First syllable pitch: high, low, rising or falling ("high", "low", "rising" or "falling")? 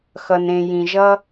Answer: low